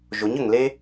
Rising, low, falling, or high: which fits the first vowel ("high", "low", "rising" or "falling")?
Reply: rising